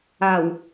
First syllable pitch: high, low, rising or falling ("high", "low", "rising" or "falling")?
low